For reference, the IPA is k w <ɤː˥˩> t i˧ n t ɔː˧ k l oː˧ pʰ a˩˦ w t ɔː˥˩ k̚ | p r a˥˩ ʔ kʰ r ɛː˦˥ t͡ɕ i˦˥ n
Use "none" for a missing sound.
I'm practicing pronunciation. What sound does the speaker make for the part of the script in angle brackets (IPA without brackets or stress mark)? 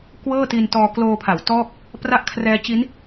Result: ɤː˥˩